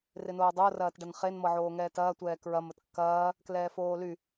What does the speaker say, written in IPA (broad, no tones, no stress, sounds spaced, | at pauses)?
r ɪ n oː dˤ o r ɐː t ɖ ɐ n χ e n m ɤ ʕ oː ŋ ɛ t ɐː tʷ ɛː k ɹ ɐ m ə t kː ɐː | k l ɛː f oː l y